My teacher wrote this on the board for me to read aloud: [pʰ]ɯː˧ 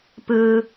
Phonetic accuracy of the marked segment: incorrect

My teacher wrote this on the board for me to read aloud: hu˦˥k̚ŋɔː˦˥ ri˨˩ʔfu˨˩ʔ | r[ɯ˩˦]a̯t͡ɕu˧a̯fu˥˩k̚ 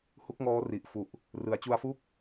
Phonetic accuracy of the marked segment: correct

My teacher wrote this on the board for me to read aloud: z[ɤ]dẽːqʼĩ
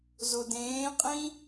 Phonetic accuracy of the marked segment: incorrect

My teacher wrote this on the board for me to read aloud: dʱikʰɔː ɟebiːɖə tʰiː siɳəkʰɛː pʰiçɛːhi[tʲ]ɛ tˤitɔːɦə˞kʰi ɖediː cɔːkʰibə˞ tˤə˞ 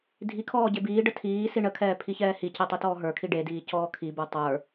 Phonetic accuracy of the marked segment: incorrect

